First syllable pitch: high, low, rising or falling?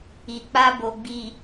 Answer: low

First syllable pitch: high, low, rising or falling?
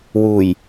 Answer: low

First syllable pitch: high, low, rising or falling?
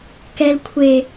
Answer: low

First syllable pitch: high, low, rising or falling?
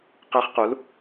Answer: rising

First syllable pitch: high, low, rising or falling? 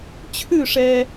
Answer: falling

